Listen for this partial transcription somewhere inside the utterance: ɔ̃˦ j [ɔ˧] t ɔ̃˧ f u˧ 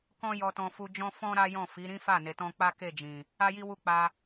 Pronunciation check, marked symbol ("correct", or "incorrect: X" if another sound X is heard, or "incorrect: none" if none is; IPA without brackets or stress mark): correct